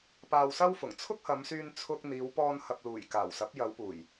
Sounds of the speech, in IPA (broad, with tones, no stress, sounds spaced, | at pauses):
p aː˧ w s ɐ˥ w f ʊ˨˩ ŋ t͡sʰ ʊ˥ k̚ h ɐ˨˧ m s yː˧ n t͡sʰ ʊ˧ k̚ n̪ iː˨˧ w p ɔː˧ n h ɐ˨ p̚ l uː˨˩ j k aː˨˩ w s ɐ˨˥ p̚ j ɐ˨˧ w p uː˨˩ j